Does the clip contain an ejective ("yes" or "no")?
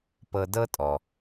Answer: yes